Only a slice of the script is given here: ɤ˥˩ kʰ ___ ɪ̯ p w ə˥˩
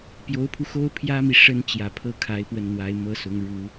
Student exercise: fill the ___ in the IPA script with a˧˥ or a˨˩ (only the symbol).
a˧˥